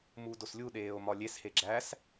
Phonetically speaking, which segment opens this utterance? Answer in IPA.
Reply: m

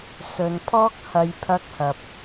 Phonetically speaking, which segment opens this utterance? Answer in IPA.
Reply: s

